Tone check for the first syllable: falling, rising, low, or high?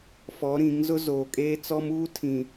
rising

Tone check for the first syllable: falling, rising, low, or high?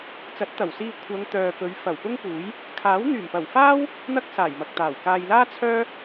rising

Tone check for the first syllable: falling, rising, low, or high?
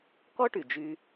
high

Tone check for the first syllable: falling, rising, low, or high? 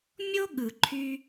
high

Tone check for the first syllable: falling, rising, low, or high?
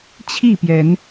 falling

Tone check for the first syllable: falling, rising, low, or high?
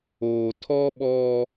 low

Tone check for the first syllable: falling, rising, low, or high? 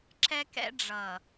high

